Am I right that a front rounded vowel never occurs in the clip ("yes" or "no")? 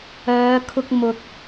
no